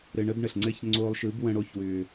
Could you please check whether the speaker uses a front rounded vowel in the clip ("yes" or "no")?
yes